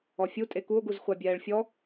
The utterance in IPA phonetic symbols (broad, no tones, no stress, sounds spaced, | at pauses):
ɔ fʲ u tʼ e k u o̯ ɡ u z χʷ a bʲ ɛː ɭ fʲ ɔ